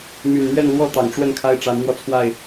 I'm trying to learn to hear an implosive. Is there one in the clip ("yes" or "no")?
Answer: no